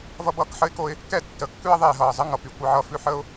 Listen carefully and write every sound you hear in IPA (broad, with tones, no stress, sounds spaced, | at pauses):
v ʌ˥ b ʌː˦ k ħ ə˥ ɪ̯ k o˥ ɪ̯ | k ɛ˥ tː ə˨ kː ʉ˥ ə̯ ðˤ eː˨ ɦ ʌː˩ zˤ ə˥ ŋ ʌ˩ p y˨ kʷ ʌ˦ ʕ ʌː˦ f ʉ˦ ħ əː˥ ʊ̯